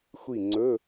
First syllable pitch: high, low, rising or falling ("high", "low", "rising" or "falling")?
falling